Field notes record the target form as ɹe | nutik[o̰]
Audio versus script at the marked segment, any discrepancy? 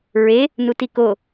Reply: yes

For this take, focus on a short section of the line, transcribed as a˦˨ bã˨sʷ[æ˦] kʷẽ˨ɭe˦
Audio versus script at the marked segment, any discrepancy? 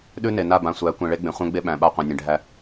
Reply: yes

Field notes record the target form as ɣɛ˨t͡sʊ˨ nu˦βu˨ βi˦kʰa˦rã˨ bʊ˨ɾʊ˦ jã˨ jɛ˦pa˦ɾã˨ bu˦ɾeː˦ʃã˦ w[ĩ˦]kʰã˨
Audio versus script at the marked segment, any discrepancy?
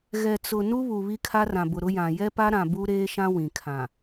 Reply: yes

